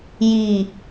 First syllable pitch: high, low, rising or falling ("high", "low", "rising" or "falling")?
low